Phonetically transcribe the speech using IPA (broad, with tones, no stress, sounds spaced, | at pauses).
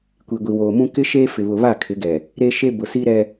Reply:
kʷ i˨ ɡʷ i˨ w oː˨ m ũ˦ k ɪ˦ ʃ eː˦ f ɪ˨ β ʊ˨ β a˦˨ kʰ ɪ˨˦ ɡ ɛ˨ | ɾ e˦ ʃ e˦ b ʊ˨ s i˦ ɾ ɛ˦